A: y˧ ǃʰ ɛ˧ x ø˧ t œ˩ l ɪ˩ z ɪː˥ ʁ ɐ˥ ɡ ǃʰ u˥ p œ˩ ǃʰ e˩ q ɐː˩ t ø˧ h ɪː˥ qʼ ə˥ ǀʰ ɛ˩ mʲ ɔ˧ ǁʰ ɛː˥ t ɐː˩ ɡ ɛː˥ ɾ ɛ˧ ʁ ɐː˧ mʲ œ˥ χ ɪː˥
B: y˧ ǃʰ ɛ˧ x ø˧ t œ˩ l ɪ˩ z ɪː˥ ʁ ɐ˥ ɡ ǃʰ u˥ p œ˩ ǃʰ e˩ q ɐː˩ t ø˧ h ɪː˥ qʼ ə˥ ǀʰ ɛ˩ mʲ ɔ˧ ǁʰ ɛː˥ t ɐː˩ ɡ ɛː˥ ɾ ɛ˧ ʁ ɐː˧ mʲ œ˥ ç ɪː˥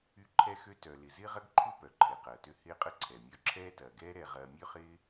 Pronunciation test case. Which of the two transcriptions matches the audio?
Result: A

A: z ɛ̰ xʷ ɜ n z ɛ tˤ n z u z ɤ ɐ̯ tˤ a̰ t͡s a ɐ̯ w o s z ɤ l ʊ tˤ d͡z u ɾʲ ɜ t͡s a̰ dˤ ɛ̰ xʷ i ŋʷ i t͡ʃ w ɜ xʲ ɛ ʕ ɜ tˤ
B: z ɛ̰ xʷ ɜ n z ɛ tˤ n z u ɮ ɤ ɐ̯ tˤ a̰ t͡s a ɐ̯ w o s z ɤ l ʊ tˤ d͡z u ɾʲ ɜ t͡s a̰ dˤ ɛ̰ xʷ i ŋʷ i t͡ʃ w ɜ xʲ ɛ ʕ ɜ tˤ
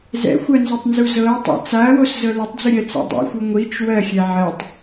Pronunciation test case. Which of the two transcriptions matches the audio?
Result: A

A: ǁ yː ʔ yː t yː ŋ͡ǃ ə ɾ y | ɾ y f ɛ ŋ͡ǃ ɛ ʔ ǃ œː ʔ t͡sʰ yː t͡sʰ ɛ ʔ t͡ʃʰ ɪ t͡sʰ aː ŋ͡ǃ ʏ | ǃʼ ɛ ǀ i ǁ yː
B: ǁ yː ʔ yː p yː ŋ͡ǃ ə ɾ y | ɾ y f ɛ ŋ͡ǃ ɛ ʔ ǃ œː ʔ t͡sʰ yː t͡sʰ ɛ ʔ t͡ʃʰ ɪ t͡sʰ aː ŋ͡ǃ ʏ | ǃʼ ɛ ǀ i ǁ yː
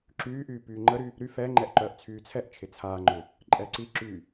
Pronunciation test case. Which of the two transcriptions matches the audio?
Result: B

